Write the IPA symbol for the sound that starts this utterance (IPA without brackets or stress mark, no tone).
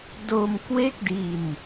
d